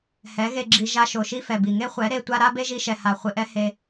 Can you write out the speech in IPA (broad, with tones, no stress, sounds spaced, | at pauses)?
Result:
h ɛ˨˦ ɣ e˧ ɡ͡ǁ i˧ ʒ a˧ ʃ o˨ ʃ i˦ f ɛ˨ b i˨ ŋ e˦ χʷ ɛ˨˦ ɾ e˧ tʷ a˦ ɾ a˦ b e˦ ʒ i˧ ʃ ɛ˨ h a˨ χʷ ɪ˧ ʔ ɛ˦ h e˧